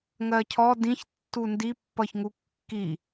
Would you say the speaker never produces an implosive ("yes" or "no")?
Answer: yes